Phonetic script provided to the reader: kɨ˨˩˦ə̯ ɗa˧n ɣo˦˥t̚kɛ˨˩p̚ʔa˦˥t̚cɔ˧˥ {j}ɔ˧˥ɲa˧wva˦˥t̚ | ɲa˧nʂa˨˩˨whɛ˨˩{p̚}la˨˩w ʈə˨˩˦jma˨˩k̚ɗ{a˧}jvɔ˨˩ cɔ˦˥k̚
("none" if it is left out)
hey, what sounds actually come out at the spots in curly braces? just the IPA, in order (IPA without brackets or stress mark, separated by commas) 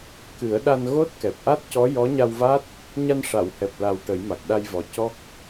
j, p̚, a˧